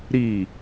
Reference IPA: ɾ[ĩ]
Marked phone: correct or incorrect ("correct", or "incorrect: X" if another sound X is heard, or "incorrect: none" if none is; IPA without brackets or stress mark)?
incorrect: i